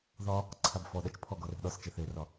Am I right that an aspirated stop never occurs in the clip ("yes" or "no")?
no